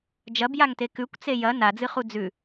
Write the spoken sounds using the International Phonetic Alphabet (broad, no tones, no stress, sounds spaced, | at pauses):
d͡ʒ ɐ b j a ŋ t e k ʉ kʷ t͡s e j ɐ n a d͡z ɨ χ u d͡z ʉ